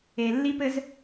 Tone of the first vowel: low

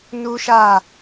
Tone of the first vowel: high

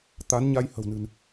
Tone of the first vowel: rising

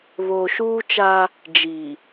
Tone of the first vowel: low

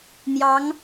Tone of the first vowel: rising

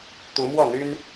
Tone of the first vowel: rising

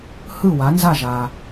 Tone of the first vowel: falling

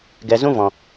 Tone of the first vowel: low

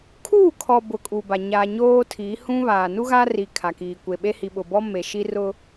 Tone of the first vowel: falling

